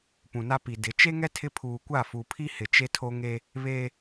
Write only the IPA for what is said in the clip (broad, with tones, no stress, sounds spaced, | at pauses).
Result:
p ũ˨ n a˦ p i˨ d ɪ˨˦ t͡ʃ e˦ ŋ ɛ˦ tʰ ɪ˦ pʰ uː˨ kʷ a˦˨ f u˨ pʰ i˦ h ɪ˨ t͡ʃ e˦ tʰ o˦ ŋ e˦ | β e˦